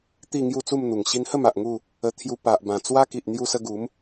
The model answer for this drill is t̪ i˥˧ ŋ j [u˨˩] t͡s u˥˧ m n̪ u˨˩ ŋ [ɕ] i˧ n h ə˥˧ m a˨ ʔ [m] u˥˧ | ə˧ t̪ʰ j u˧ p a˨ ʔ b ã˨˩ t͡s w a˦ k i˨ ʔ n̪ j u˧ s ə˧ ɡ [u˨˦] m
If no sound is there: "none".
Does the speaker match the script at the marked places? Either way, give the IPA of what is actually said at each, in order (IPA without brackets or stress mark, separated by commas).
u˥˧, ɕ, ŋ, u˨˦